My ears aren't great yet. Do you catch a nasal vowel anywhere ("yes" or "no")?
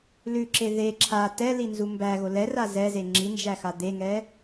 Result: no